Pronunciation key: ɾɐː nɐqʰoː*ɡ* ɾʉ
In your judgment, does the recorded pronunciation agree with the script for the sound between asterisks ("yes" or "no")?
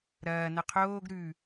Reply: yes